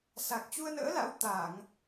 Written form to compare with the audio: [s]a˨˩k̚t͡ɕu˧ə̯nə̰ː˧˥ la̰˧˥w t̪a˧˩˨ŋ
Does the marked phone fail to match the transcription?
no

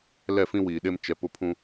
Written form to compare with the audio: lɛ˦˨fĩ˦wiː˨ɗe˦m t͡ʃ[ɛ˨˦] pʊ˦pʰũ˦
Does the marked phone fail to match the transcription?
yes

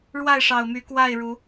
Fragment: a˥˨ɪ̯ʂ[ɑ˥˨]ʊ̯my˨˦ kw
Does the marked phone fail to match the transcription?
yes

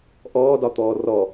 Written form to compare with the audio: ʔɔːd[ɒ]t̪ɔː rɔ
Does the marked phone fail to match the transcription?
no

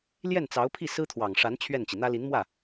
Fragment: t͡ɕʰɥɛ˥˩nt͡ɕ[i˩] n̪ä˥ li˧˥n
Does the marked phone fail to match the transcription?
no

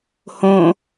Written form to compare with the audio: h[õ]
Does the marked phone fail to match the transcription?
no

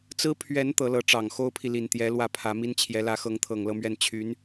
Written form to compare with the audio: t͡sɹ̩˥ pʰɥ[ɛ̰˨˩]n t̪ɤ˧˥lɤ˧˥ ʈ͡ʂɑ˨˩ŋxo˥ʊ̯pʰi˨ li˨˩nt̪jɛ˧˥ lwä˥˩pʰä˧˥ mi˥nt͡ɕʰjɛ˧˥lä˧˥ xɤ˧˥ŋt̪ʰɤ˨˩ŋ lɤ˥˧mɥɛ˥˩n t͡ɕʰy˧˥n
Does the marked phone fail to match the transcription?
yes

